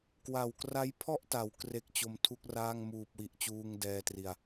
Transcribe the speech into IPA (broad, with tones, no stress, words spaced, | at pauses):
kwa˨˩wkra˦˥jpʰɔ˥˩ʔta˩˦w kre˦˥k̚t͡ɕo˧m tʰu˥˩k̚raː˥˩ŋ muː˨˩p̚wi˨˩ʔt͡ɕuː˧ŋ dɛː˧tri˨˩a̯